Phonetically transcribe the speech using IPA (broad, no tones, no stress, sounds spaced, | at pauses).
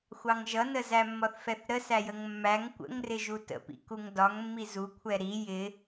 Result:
xʷ ɑ ŋ ʒ ʌ n ə z æ mː ɒ θ f ɛ θ ɾ ə s æ j ə ŋ mː æ ŋ kʷ ə̰ ŋ r ɪ ʒ u t ə̰ p ḭ k u ŋ d ɒ ŋ mː i z u kʷʰ ɛ ɾ i j ɪ